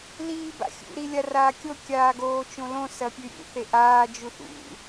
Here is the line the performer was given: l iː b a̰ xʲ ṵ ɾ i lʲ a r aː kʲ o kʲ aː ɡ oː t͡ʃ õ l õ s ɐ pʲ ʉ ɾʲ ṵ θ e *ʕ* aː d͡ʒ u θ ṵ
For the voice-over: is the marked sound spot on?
no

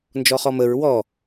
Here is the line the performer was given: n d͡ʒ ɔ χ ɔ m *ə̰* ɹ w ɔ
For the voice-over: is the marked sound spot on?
no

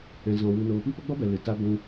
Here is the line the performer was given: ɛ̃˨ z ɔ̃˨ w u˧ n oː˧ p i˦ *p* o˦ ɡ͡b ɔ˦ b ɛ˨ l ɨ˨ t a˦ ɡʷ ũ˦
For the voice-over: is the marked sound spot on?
yes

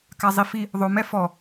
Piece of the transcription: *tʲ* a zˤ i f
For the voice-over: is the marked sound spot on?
no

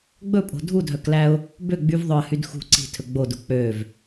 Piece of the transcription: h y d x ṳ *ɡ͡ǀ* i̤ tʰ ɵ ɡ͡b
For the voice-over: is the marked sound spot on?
no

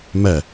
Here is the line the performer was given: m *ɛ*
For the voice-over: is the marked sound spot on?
yes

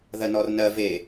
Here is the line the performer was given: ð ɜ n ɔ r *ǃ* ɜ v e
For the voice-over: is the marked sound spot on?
no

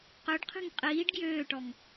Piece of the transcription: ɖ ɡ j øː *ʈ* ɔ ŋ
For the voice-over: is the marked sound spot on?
yes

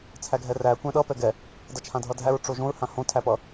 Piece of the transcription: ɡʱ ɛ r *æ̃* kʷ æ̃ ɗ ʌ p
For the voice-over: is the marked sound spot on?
no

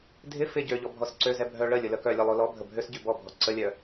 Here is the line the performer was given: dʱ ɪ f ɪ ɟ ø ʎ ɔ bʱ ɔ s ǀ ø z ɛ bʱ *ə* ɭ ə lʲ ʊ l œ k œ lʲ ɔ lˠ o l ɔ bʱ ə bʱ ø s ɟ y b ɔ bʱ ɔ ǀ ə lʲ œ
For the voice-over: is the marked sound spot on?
no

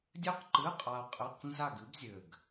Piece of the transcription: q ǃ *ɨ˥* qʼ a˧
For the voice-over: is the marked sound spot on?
no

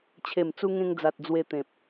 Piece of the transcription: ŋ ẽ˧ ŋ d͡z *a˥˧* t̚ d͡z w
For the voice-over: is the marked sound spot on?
no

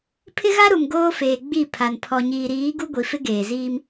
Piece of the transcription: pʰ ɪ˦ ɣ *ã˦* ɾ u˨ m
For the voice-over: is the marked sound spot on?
no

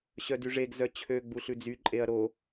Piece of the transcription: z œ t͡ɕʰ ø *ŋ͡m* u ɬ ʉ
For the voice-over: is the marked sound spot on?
no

